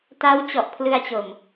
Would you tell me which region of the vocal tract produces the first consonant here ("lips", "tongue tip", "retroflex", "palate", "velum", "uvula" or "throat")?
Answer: tongue tip